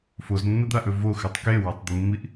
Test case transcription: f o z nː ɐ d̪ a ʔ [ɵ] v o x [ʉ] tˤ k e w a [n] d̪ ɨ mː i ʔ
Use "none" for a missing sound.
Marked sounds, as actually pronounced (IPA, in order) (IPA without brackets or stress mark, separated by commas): ɵ, ʉ, tˤ